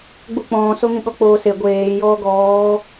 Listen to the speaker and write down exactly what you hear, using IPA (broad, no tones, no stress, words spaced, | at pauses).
ɡ͡buk͡pɔ̃ːsoŋĩ ɠɔk͡poːse ɡʷeːjɔː ɡɔː